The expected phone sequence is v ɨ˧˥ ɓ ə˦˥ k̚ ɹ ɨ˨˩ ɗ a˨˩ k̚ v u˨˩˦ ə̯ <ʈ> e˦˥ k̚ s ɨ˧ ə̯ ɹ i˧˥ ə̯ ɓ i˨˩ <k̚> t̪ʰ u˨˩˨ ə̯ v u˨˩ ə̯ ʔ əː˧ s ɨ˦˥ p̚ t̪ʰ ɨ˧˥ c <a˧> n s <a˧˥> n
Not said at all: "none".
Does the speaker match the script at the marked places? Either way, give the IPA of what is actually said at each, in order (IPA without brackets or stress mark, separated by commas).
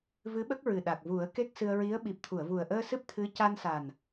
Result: k, p̚, a˧, a˨˩